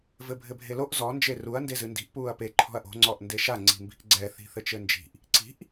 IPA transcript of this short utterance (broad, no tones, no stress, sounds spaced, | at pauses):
v ɘ bʱ ɘ bʱ e l o ʔ z ɔ n d͡ʒ e r u ɐ̯ n d e z ɨ n d i̤ ʔ p uː ɐ̯ p e ǃʰ ɔ̤ ɐ̯ ʔ o̤ ŋ͡ǀ ɔ ʔ n d e ʃ a ŋ͡ǀ i̤ m b i̤ ʔ ɡ͡ǀ ɛ θ i̤ θ ɘ t͡ʃ ɘ n d͡ʒ i̤ ʔ | ǀ i̤ ʔ